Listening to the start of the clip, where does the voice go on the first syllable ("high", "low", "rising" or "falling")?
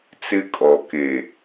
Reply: high